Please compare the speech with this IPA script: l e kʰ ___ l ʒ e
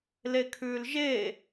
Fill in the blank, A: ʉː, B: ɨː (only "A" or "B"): A